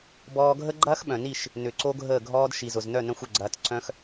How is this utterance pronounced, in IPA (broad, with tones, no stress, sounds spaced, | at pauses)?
b ɔː˧ ɡʱ ə˦ ɡ͡ǃ ɐː˦ x ɓ œ̃˨ n i˦˨ ʃ | n ʏ˨ ǀ o˦ ɡʱ əː˦˨ ɡʱ ɔː˦ d ʃ i˨ z ʊ˨ z n œ˦˨ n œ̃˦ xʷ ʏ˦˨ ɡ͡ǀ ɐː˧ t ǀ œ̃˦ x